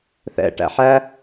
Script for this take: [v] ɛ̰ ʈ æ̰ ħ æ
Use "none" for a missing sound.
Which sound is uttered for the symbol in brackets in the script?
θ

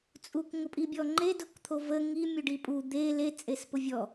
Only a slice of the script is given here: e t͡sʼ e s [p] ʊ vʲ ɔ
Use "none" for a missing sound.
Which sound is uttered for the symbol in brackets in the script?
p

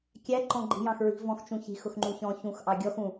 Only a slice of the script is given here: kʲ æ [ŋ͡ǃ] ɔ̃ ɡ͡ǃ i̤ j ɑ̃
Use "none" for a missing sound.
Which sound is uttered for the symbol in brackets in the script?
ǃ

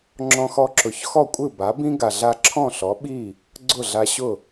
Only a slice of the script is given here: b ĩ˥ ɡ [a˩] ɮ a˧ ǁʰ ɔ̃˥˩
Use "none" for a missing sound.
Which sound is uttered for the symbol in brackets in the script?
a˩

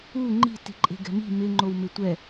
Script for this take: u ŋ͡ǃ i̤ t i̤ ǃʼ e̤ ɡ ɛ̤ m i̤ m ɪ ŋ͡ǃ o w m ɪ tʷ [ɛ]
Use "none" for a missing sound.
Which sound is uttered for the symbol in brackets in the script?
ɛ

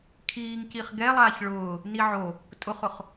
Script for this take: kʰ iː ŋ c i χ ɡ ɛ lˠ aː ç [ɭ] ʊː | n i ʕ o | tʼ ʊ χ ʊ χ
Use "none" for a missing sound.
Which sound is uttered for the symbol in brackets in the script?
ɭ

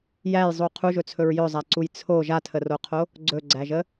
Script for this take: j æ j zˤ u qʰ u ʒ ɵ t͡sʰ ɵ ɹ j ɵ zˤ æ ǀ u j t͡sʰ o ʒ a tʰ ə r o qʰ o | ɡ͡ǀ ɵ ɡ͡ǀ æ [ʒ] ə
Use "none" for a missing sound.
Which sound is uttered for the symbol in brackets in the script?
ʒ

